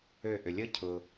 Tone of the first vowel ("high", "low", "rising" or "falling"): falling